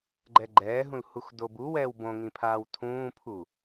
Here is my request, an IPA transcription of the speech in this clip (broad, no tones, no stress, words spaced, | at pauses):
ɡ͡ǃɛɡ͡ǃɛːɦũl huxdobuwɛːw bõŋĩ pʰaːwtʰũːpʰu